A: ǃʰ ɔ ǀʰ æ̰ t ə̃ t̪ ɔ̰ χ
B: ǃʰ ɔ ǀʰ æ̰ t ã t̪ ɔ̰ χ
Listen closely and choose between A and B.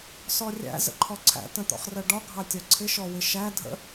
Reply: A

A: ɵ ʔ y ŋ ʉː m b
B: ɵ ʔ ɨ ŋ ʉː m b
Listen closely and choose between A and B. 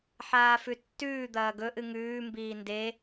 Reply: B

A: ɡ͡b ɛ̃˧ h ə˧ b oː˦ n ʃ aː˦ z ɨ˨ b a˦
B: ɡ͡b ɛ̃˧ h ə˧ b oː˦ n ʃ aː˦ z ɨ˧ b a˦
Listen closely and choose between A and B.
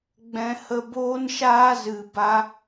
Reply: B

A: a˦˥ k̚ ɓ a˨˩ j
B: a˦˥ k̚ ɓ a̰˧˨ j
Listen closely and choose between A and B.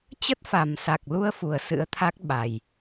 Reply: A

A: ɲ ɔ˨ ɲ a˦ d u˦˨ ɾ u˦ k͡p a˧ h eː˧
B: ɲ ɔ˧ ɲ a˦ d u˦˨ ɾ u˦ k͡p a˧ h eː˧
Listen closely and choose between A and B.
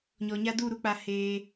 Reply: A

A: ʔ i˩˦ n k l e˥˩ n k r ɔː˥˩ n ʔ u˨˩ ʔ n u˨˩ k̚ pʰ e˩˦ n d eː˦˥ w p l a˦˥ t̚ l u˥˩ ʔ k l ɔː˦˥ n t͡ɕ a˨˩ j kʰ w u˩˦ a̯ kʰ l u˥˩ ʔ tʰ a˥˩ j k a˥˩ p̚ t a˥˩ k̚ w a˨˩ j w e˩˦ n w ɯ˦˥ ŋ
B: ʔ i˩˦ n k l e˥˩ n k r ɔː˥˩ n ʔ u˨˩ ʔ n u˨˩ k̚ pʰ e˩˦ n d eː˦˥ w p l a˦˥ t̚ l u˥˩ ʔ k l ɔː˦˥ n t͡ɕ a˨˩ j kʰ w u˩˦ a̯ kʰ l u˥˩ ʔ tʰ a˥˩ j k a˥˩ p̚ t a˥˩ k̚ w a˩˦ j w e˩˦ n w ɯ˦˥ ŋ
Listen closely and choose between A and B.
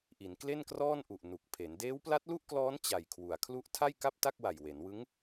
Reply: A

